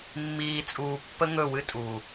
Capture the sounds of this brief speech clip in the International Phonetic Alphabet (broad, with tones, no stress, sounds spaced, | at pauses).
mː iː˧ t͡sʼ uː˧ pː ə˦ ŋ ɵ˦˨ w ɨ˦ tʼ uː˨